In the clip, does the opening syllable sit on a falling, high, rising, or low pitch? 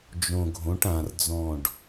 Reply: low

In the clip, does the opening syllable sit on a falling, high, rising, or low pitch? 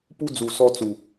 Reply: high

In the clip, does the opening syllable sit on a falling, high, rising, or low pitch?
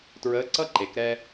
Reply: rising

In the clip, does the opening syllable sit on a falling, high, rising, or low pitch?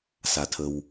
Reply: low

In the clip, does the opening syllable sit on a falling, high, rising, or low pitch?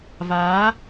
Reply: rising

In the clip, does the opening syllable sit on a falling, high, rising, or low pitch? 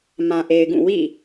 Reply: low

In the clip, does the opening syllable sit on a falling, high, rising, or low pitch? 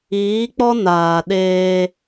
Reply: rising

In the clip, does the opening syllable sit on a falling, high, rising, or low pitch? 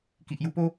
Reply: low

